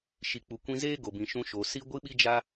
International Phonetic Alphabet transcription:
ʃ i˨ k͡p u˨ kʷ ĩ˧ z eː˦ ɡ o˨ b ĩ˨ ʃ ũ˧ ʃ o˨ s i˦ ɡʷ ɨ˦ ɓ i˦ d͡ʒ a˦

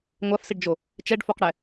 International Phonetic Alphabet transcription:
ŋʷ a f s i ɖ d͡ʒ o | t͡ʃ ɛ ɖ f o q ɽ ɛ

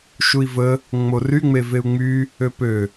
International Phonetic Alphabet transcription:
ʃ u i̯ v ə | ŋ͡m o r y ŋ͡m e v e u̯ ŋ͡m y | ø p ø

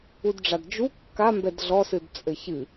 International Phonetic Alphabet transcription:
u d ɖ͡ʐ a d d͡ʒ u kː a m b ɛ d ɮ ɔ s ɨ d t͡sʼ ɘ ç ɨ

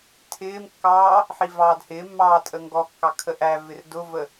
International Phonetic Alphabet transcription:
tʰ ɪː m kː ɑː | ħ i v ɑː d h ɪː mː ɑː tʼ ə ŋ ɡ ɔ kː ɑ kʰ ə ʔ æ v ɪ r d ʊ v ə

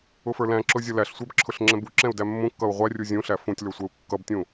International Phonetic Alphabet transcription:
ʊ f ə˞ l æ̃ ǁ ʊ zʲ ʌ l æ ɬ sʷ æ b ǁʰ ʊ ɬ ŋ͡ǁ ɛ̃ b u ǁ ɛ̃ u̯ d æ mː ũ kː ʌ u̯ ʁʷ æ rʲ u zʲ ũ ɬ æ f ũ tʲ l ə˞ sʷ ɛ u̯ kː ʌ b tʲ ũ

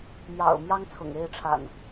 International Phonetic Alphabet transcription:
m j ɑ̰˨˩ ʊ̯ m j ɑ˦ ŋ t͡sʰ ʊ̰˨˩ ŋ e˥˨ ɪ̯ ʈ͡ʂʰ a̰˨˩ n

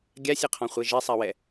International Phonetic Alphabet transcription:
ɡʲ a sʲ e qʰ ɔ̃ χʷ e ʒ e sˤ a w ɛ

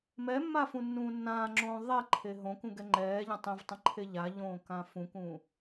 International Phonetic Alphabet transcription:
m ɛ mː a f ũ nː ũː nː ãː ŋ͡ǁ õː ðˤ ɛ ǃʰ e ɦ õ k ũ ɡ ɛ ŋ͡ǃ ɛː ʎ ã tˤ ẽ v tˤ ə̃ ǃʰ e ʎ a ʎ õː k ã f ũ k ũː

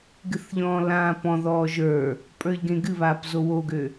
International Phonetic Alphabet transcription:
ɡ ɨ θ ʎ ɔ̃ː l ãː p ɔ̃ ð ɔː ʒ ə˞ | pʼ ə˞ ʎ ɡ ẽ ɡ ɨ β aː p z o w o ɡ ø

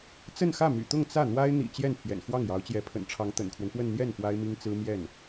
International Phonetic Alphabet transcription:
t͡s ə˥˧ n x ä˥˩ m y̰˨˩ t̪ ʊ˥˧ ŋ t͡s ä˥˩ n̪ w a˥ ɪ̯ n̪ ḭ˨˩ t͡ɕ j ɛ˥˩ n pʰ j ɛ̰˨˩ n x w ɑ˥˩ ŋ j ɑ˧˥ ʊ̯ t͡ɕ j ɛ˧˥ pʰ ə̰˨˩ n ʈ͡ʂʰ ɑ˧˥ ŋ t̪ ə̰˨˩ n kʰ w ə˦ n p w ə˥˧ n n̪ j ɛ˥˩ n p w a˥ ɪ̯ m i˥ ŋ t͡s ɹ̩˥ m j ɛ˥˩ n

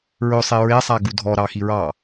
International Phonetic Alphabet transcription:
ɹ ɵ sˤ e ɹ e sˤ a ɡ u dʱ ɔ ɾ ɑ x i ɹ ɑ

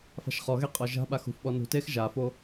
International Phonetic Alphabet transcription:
f a̤ ʃ χ ɔ ɣ e qʼ ɔ ʒ a̤ ɓ a x ṳ f ɓ ɔ n ṳ t eː x ʒ a f o

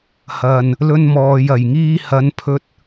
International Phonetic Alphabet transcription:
h ɐ˨ n | l ɵ˥ n m ɔː˧ j ɐ˨ j ŋ iː˥ h ɐ˨˧ n pʰ ɵ˧ t̚

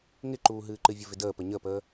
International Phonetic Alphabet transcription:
ŋ ɪ ǃ uː ɦ ɨː ǃ ɨ vʲ ə v ɪ d əː p ə ɲ ə p əː

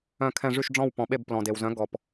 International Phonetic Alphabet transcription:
œ̃˦˨ kʰ ɛ̃˦˨ ʐ y˦˨ ʃ ɖ͡ʐ ɔ̃˦˨ w p ɔ̃˨ ɓ e˦˨ b p l ɔ̃˨ d e˨ w z œ̃˨˥ ɡ ɔ˨ p

